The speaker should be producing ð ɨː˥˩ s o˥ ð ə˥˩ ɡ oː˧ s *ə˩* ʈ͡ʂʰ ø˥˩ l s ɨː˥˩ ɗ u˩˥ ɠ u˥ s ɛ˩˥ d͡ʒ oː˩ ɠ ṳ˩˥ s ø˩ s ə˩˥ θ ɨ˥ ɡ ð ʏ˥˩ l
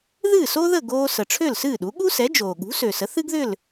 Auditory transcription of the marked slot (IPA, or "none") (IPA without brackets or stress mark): ə˩